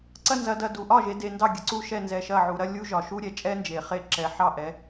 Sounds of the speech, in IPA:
ǀɐ˥˧nzɐ˩˧dɐ˧˩ du˩ʔɒ˥˩ʒe˩˧ de˩˧ndɑ˥˩ ɡʲə˩ǀu˥˩ʃɛ˥˩nzɛ˧˩ ʃɐ˥˩ʕu˩˧ɾɐ˥ lʲu˥ʒɒ˩ ʃu˥ɾʲɛ˩t͡ʃʼɛ˥ nd͡ʒe˩χe˥˩ ǁɛ˩˧ ħɑ˥˩ʔɛ˩˧

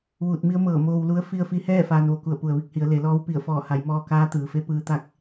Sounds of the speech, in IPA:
ʋuː˧˩t̚mi˧˥ə̯mɤː˧˩ moː˧wlu˧˥ə̯ fi˧ə̯fi˧hɛː˥˨ faː˧nʋo˩ku˧˩ə̯ pu˩ə̯ʋi˥˨k̚hi˩˧ə̯ le˩˧lɔː˧˥w pi˧˩ə̯fɔː˧˩ha˩˧j mɔː˧kaː˧˥t̪ɯː˩fe˧˥ pɯː˧t̪a˥˨k̚

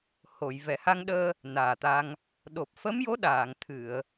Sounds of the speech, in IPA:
ho˨˩˨j vɛ˨˩˨ha˧ŋɗəː˧ | naː˨˩t̪a˧ŋ | ɗo˨˩p̚ fə˧˥mjo˧˥ ɗaː˨˩˨ŋ t̪ʰɨ˨˩˨ə̯

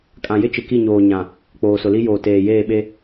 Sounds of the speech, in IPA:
kʼã˨jɪ˦ t͡ʃɪ˨ki˦˨ɲoː˨ ɲã˨ | k͡poː˨sʊ˨li˦joː˨ teː˨jeː˦˨ɓe˦

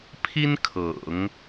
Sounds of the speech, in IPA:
pʰi˥nkʰɤ̰˨˩˦ŋ

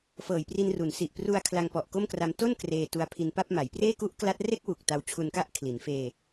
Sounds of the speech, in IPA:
fɤː˨˩jpri˧nru˩˦nsi˨˩ʔ pru˧a̯ kʰla˧ŋpɔ˨˩ʔ ko˥˩mkra˧m to˥˩n kreː˧tu˧a̯pʰi˧npa˥˩p̚ ma˩˦jpreː˥˩ ku˦˥ʔ kla˦˥t̚ re˥˩k̚wu˨˩k̚ ta˧wt͡ɕʰu˧nka˥˩ʔ kʰli˩˦n feː˧

